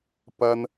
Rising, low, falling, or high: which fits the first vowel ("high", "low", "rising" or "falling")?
high